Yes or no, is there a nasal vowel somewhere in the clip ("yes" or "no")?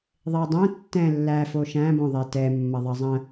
yes